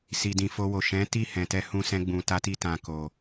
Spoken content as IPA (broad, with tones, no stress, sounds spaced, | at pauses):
s i˨ d ĩ˨ f o˧ w o˨ ʃ ɛ̃˨˦ t i˦˨ h ɛ̃˨ t ɛ˧ h ũ˧ s ɛ̃˧ ɡ͡b ũ˨ t a˧ t i˧ t ã˨ k o˨